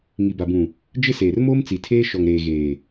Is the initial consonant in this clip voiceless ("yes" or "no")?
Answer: no